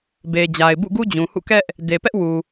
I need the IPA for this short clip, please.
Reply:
be˨ d͡ʑa˨ɪ̯bṵ˦˨ɡu˦ d͡ʑũ˨hṵ˦˨ kɛ˦ʔ | de˨pɛ˦ʔ wu˨

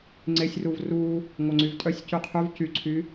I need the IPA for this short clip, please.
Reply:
ŋ͡ǀesʲruv ru | ŋʷœŋ͡ǀyvtʼœsʲ cyqʰyv cyǀʰy

